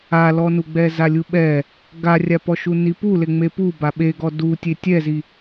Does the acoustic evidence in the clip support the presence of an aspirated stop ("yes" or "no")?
no